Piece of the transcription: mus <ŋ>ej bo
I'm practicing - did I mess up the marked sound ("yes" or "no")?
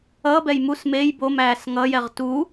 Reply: yes